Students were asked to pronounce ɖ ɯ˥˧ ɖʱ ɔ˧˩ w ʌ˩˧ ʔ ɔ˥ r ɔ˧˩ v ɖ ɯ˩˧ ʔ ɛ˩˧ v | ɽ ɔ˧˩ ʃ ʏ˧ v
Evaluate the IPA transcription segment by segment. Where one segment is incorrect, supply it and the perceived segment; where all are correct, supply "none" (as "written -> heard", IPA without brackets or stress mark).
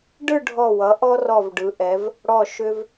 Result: none